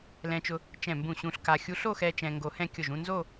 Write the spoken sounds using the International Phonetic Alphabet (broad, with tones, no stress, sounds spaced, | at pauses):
l ɛ̃˧ t͡ʃ ʊ˧ | t͡ʃ ɛ̃˧˩ m b ũ˧˩ ɕ ũ˧ ɬ k a˧ xʲ u˧ ɬ o˥˧ x ɛ˧ t͡ʃ ɛ̃˧ ŋ ɡ o˧ h ɛ̃˥˧ kʲ ʊ˧˩ ʒ ũ˥˧ n z o˥˧